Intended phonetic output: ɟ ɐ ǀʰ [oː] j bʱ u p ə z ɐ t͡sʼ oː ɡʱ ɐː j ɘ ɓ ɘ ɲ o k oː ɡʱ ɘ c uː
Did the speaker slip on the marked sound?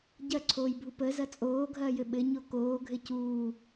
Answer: no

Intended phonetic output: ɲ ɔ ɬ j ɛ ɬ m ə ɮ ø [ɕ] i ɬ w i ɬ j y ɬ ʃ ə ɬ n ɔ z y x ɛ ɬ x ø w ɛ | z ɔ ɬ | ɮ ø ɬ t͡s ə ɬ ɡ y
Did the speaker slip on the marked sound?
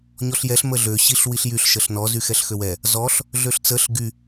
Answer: no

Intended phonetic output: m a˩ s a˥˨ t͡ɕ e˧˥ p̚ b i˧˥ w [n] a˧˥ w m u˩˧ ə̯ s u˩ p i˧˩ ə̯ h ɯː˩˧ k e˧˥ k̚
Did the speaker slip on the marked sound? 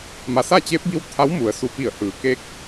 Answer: yes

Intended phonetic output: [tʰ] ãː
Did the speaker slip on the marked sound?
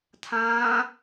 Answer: no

